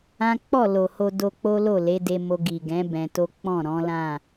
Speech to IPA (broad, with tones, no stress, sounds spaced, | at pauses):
ã˦ k͡p ɔ˦˨ l o˨ h o˧ d o˧ k͡p o˦ l o˦˨ l e˨˦ d e˧ m o˧ ɡ i˨ ɡ ɛ̃˨˦ b ɛ̃˧ t o˦ k͡p ɔ̃˦˨ ɾ ɔ̃˨˦ l ã˦˨